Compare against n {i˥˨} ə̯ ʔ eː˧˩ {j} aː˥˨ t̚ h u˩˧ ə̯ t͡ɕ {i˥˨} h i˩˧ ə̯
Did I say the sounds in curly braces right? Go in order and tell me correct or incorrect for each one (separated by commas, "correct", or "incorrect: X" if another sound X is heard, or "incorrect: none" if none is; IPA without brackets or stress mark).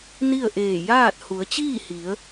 correct, correct, incorrect: iː˥˨